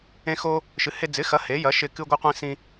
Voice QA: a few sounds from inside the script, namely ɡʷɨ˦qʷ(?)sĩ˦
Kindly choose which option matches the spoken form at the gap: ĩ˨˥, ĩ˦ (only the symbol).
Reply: ĩ˦